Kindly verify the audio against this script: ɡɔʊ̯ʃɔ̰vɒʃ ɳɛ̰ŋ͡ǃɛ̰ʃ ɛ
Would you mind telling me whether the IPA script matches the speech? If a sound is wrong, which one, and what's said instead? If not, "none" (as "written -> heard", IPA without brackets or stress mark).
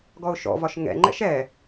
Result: ɳ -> ŋ